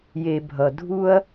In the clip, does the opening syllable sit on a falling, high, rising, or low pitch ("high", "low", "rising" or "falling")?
low